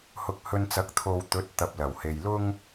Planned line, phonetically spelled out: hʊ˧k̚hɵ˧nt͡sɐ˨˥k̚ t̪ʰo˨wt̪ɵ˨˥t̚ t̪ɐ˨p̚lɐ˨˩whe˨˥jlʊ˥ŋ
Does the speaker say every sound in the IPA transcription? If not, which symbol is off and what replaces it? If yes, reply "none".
e˨˥ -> e˨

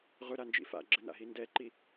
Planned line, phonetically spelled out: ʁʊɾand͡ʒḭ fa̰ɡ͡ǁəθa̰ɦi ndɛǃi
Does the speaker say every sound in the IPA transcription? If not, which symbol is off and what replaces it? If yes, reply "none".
θ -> n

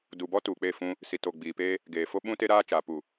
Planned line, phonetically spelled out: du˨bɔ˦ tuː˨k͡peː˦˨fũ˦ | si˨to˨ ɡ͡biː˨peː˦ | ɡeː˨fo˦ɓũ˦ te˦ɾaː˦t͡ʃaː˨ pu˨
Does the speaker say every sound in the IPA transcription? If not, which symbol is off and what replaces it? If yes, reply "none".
none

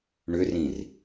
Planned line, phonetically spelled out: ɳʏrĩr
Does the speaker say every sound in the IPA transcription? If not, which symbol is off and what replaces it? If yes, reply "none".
none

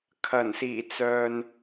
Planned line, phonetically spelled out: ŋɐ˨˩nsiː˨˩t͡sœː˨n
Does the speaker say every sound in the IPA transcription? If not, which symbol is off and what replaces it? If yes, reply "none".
ŋ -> kʰ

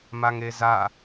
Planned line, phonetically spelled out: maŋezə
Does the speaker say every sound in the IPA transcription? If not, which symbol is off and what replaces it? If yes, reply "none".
ə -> a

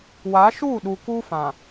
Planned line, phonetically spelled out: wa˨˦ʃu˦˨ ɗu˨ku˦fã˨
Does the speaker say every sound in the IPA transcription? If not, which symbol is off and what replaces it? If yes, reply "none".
none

